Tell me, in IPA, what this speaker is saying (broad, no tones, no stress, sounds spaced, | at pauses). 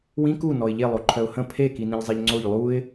w ĩ k u n ɔ ɪ̯ ʎ e lˠ o ǃʰ œ ʊ̯ h ə̃ pʰ e k i n ĩ ʎ zˤ e ʎ ŋ͡ǀ o ʎ lˠ u ɪ̯